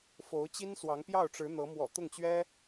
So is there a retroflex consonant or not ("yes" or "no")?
yes